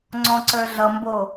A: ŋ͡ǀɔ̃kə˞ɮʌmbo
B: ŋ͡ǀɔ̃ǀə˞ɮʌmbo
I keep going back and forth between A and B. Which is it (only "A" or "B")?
B